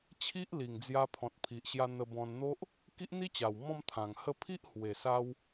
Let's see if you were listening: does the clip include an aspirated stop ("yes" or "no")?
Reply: yes